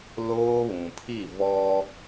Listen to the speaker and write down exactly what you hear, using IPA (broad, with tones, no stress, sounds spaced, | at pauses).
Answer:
l oː˦ β ũ˨ pʰ i˦˨ v ɔ˦